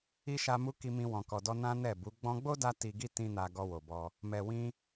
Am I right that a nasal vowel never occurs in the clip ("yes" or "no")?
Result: no